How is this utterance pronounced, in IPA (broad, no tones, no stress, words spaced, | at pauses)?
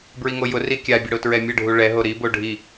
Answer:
bɹiŋojʊri kʲabʲə ɽotɹɛmʲəɖʱu ɭɛɦo ɾibo ɖʱi